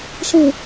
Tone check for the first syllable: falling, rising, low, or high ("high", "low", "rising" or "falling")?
low